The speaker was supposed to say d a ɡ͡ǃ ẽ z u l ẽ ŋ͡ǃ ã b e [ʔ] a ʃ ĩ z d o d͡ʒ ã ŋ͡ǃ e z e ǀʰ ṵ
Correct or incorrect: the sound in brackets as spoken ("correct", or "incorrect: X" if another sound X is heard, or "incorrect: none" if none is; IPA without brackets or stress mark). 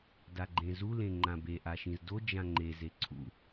correct